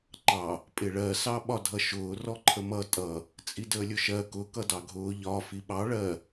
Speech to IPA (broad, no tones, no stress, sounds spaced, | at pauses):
ŋ͡ǃ ɑ | pʼ ɪ ɭ ɜ s ɑ ɓ ɒ dʱ ʌ ʃ ʊː r ɔ ǃʰ ə m ʌ tʼ ʌ | t͡sʼ i d əː lʲ ʊ ʃ ɜ k ʊ k ʌ d ɑ ɡʱ ʊː ʎ ɒ f i ɓ ɑ ɭ ɜ